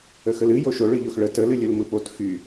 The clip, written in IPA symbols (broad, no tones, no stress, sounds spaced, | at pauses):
ə x ə l ɨ j o ʃ o ɭ ɯ ʎ o x ɭ ə t ə l ɨ lʲ ɯ l m ɯ p o t x y